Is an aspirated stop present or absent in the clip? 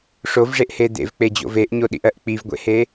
absent